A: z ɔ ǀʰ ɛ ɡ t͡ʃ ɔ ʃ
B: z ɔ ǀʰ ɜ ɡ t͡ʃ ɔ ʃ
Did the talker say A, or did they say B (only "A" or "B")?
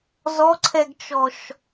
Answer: A